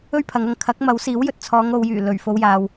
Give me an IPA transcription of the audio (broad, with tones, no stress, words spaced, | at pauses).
ɵ˥ɥpʰɐ˨˧ŋɐ˨ŋ kʰɐ˨˥k̚mɐ˨˥wsiː˨˥w jɵ˨t̚t͡sʰɔː˨˧ŋ o˨˧wjyː˨˩ lɵ˨˩ɥ fo˨˧wjaː˨w